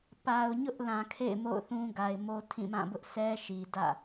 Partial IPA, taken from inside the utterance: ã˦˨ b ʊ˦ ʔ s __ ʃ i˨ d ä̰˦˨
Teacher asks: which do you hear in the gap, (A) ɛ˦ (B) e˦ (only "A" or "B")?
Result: A